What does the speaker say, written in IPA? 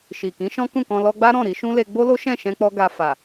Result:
ʃi˨kĩ˨˦ ʃɔ̃˦kũ˦˨kɔ̃˧ lɔ˧ɡ͡ba˦ ɾɔ̃˦˨ɾi˧ʃũ˦le˧ ɡ͡bo˦lo˦ʃɛ̃˦˨ʃɛ̃˧ k͡pɔ˦ɡa˧ fa˨

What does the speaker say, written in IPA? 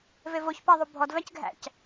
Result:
vevoçpæðˤu bʱɔdvæcɡʱæ̰c

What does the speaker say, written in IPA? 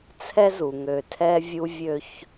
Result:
t͡sʰɛ˦zu˨ ŋø˨tʰɛ˦ vʲu˦vʲø˦ç

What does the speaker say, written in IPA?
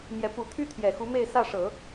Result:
mjɛ˧˥ pu˨˩t̪ʰy˥ t̪ʰjɛ˨˩xu˧˥me˥˧ɪ̯ sä˥˩ʂɤ˨˩˦

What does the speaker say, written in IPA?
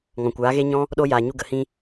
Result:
ŋɔ̃˨kʷaː˨˦ɣe˦ɲɔ̃˦ | ɗo˦ jaː˨ɲu˧ɡə˨hĩ˧

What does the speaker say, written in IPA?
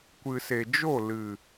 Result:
kʷɨ˨se˨ d͡ʒo˦˨lɨ˨

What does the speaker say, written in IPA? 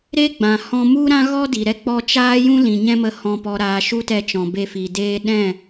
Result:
ɾe˦ɡ͡bã˨ hɔ̃˧mu˦ ɾã˦ɣɔ˦ di˨ɾɛ˦ k͡pɔ˧t͡ʃaː˦jũ˦ lĩ˨ɲɛ̃˦mə˧ hɔ̃˨pɔ˨ɾaː˨ ʃu˦tɛ˧t͡ʃɔ̃˨ be˧fi˨deː˦ ɗɛ̃˦˨

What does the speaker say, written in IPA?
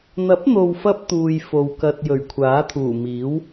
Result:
n̪ɐ˨˥p̚n̪o˨wfɐ˧p̚ t̪uː˨j fo˨wkɐ˧t̚ jɵ˨˩ɥkʷʰaː˨˥t̪ʰuː˨˩ miː˨˥w

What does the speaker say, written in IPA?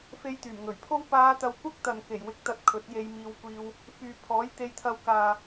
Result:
fe˧jt̪yː˨˩mŋɵ˨˩ɥpʰo˥w paː˨˧t̪ɐ˨˧w kʷɐ˥k̚t̪ɐ˨n ke˨˩jwɪ˨˥k̚t̪ɐ˨t̚ kʰɵ˨˥t̚je˧jmiː˧wkʷiː˧w | fyː˨pʰɔː˨˥j t̪e˧jt̪ʰɐ˧w kaː˨

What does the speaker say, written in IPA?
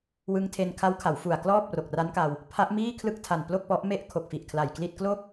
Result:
wɯ˧ŋtʰe˧n kʰa˦˥wkʰa˩˦wfu˨˩a̯klɔː˥˩p̚ ro˨˩k̚ra˦˥nka˧w | pʰa˦˥ʔmiː˥˩kʰlɯ˥˩k̚tʰa˨˩n plo˥˩k̚pɔ˦˥ʔme˥˩ʔ kʰo˨˩k̚fi˨˩ʔ kʰla˨˩jkli˥˩t̚ klo˥˩k̚

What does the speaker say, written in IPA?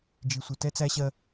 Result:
d͡ʒi˨sʷɪ˨ tɛ˦t͡sæ˦ɕɜ˦

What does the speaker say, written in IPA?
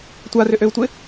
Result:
tʷarʏʔøu̯tʷɪ

